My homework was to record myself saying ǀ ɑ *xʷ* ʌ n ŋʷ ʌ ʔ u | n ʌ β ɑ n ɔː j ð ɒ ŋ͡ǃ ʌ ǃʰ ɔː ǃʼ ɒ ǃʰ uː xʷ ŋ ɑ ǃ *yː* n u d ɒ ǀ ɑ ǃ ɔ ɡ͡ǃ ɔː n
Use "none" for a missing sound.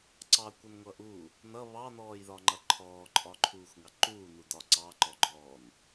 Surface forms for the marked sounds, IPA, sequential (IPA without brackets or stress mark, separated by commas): kʷ, uː